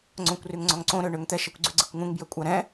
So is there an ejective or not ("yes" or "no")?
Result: yes